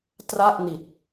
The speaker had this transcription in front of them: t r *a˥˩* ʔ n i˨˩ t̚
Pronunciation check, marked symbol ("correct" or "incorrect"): correct